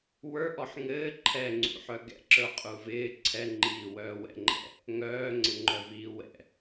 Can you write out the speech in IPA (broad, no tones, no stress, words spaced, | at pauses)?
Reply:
wə˞ʔɔħ ŋɘː ǃʰɛŋ͡ǀṵħœ ɡɛ̰ǁə˞qʼuːv ɪː ǀʰɛŋ͡ǃiːwœː wɛ̰ŋ͡ǃɛ̰ | ŋœːŋ͡ǀɪŋ͡ǃœviː wɛ̰